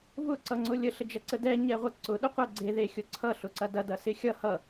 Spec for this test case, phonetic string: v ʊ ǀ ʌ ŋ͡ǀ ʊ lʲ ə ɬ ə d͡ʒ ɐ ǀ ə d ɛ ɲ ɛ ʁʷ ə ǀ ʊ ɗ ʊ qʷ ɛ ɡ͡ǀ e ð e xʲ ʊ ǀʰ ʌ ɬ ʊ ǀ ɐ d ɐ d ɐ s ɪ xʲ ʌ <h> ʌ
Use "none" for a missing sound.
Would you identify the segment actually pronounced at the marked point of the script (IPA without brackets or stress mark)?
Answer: h